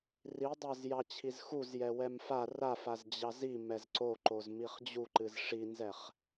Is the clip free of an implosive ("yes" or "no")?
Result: yes